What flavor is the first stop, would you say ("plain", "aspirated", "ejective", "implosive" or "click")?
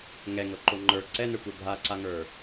click